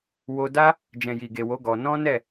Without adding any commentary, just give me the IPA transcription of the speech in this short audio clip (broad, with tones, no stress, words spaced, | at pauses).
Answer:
wo˧da˦ | d͡ʒɛ̃˨ji˨ɡe˨wo˨˦ ɡɔ˧ nɔ̃˦nɛ˦˨